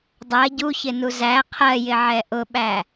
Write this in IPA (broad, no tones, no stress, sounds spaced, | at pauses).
dˤ ɜ ɟ u ç ɪ n u z æ qʰ ɜ j ɪ ʕ ɛ ʔ ʊ ɓ æ